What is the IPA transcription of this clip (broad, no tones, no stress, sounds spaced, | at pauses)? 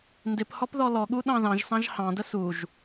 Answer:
n d ɪ p h ɔ p ð ɔ l ɔ ɠ u ɗ ɑ̃ ð ɑ̃ ʒ s ɑ̃ ʒ h ɑ̃ d ə s u ʒ